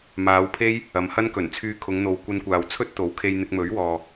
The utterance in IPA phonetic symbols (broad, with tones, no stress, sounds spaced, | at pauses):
m aː˨˧ w pʰ e˥ j | ɐ˨˧ m h ɐ˥ n k ɵ˨˩ n t͡sʰ yː˧ kʰ ʊ˨˧ ŋ n̪ o˨ w kʷ ɐ˧ n kʷ aː˨ w t͡sʰ ɵ˥ t̚ t̪ o˨˥ w kʰ e˧ j n̪ ɪ˧ k̚ m ɵ˨˥ ɥ w ɔː˨